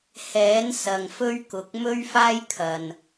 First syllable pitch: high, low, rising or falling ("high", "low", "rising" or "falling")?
rising